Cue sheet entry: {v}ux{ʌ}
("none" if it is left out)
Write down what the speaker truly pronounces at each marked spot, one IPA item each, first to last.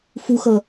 f, ʌ

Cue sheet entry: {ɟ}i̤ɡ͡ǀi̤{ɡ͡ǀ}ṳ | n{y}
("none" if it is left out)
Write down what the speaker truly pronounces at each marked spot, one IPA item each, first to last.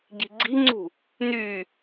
ɟ, ŋ͡ǀ, y

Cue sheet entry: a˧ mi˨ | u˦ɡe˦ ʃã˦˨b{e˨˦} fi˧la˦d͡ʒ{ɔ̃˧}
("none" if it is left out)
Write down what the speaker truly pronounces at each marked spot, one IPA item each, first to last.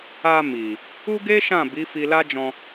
i˨˦, ɔ̃˧

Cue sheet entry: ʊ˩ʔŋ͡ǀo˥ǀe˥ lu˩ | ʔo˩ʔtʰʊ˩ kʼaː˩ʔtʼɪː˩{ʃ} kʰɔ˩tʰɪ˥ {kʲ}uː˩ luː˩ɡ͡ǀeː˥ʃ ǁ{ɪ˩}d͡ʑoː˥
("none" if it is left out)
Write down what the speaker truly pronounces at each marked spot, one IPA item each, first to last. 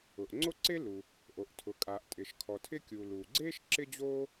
ʃ, kʲ, ɪ˥

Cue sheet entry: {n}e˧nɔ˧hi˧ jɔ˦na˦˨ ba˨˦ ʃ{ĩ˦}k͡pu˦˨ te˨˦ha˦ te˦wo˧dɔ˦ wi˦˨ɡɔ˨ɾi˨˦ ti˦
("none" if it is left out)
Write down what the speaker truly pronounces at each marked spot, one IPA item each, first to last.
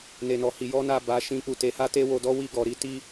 n, ĩ˦

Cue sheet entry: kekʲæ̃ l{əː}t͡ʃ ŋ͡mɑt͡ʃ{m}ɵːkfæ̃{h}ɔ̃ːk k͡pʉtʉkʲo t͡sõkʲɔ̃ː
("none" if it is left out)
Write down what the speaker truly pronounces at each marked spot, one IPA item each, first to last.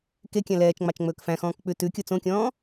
ɛː, ŋ͡m, x

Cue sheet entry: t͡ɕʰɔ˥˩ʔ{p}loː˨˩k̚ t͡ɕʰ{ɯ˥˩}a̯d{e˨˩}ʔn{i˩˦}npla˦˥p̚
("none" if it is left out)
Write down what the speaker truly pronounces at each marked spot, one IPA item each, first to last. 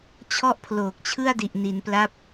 pʰ, ɯ˥˩, i˨˩, i˩˦

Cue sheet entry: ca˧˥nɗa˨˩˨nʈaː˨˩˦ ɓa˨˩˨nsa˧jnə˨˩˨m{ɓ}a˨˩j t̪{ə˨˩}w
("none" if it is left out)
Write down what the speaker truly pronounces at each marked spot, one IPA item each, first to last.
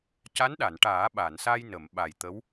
ɓ, ə˧˥

